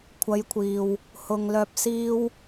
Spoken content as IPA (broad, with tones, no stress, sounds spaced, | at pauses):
kʷʰ ɐ˨˧ j kʷʰ iː˨ w | h ʊ˨ ŋ l œː˧ p̚ s iː˥ w